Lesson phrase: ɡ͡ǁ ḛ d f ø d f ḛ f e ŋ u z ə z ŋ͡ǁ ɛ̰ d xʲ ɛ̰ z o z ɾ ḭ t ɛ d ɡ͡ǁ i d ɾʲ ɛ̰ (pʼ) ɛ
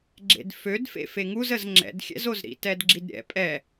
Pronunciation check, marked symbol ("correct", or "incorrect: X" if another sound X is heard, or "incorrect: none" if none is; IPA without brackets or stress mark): correct